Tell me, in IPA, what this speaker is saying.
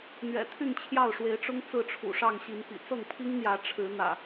n̪ ɥ ɛ̰˨˩ t̪ʰ y˥˨ n t͡ɕʰ j ɑ˥˨ ʊ̯ ʂ w e˨˦ ɪ̯ ʈ͡ʂ ʊ˦ ŋ t͡s ɹ̩˥˨ ʈ͡ʂʰ ṵ˨˩ ʂ ɑ˥˨ ŋ ɕ i˨˦ n p ḭ˨˩ t͡s ɤ˥˨ ŋ pʰ i˦ ŋ n̪ j ä˨˦ ʈ͡ʂʰ ɻ̩˨˦ n̪ ä̰˨˩

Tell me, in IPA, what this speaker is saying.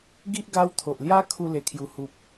ɡ i˦ ʔ ɡ a˦ w t̪ʰ o˨ ʔ l j a˦ kʰ u˧ l e˨˩ kʰ j u˨˩ h u˨ p̚

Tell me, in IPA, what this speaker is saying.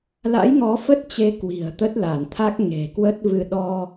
l a̰˧˥ j ŋ ɔ˨˦ f ə˦˥ t̚ t͡ɕ e˨˦ k w i̤˨˩ ə̯ t̪ ə˦˥ t̚ l a˧˩ n t̪ʰ a˦˥ k̚ ŋ e̤˨˩ k w ə˦˥ t̚ v ɨ˧ ɗ ɔ˧

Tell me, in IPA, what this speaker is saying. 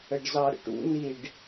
ə ɖ z ɑ ɾ ə̰ ʈ ṵ n i ɖ

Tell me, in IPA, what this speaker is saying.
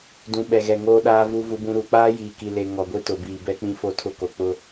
d ũ˨ ɓ ɛ˨ ɣ ɛ˨ ŋ oː˦ ɗ aː˦ v u˦ v u˦ b ũ˦ ɾ u˨˦ k͡p aː˦ j iː˨ k i˨ l e˨ ŋ ɔ˨ ɡʷ i˦ t ʊ˨ b iː˨ b ɛ˦ k͡p ĩ˦ f o˦˨ tʰ ʊ˦ k o˨ k͡p ʊ˦

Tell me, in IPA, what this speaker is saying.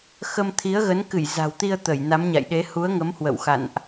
x ə˧ m t̪ʰ i˨˦ ə̯ ɣ ə˨˦ n k ɨ˧˩ j z a̤˨˩ w t̪ i˧ ə̯ t̪ ə˧˩ j n a˨˦ m ɲ a̰˧˨ j ɗ e˨˦ h u˨˦ ə̯ ŋ ə˨˦ m h w ə̰˧˨ w x a̰˧˨ n ʔ

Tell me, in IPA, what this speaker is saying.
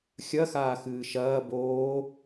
xʲ ɐ x aː x ɨː ʃ ɐː b oː

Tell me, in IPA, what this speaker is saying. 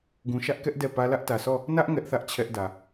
ɡ ũ˨ ʃ ä˦ ʔ k ɛ˦ ʔ d ɛ˦˨ p ä˦ l ä˦ ʔ t ä˨ sʰ ɔ˦˨ | n ä˦ ʔ ŋ ɛ˦ ʔ θ ä˦ ʔ t͡ɕʰ ɛ˦ ʔ d ä˨

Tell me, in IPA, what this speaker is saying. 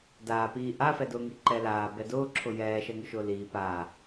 d aː p iː ʔ a f ɛ d ʊː ŋ i ǃ ɛ l aː b ɛ d ʊː ǁʰ ʊ j ɛː ʃ ɛ ŋ ʊ ʃ ʊː l iː p aː

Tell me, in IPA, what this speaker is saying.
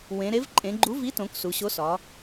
w ẽ˩˧ ɾ e˨˥ v ǃʼ ẽ˩˧ ɡ͡ǃ u˨˥ v i˨˥ t õ˩˧ k s u˩˧ ɕ o˨˥ s ɒ˩˧

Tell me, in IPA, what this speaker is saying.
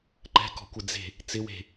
ǃ ɛ̤ k ɔ̤ kʷ ɪ d͡z e̤ | t͡s ɪ w e̤

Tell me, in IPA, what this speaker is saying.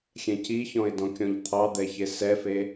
xʲ ɛ̃ c i ç ɔ̃ ɪ̯ d ɔ̃ kʲ ɔ̃ ʎ t̪ʰ ɑ d̪ ɛ ç e s ɛ f e

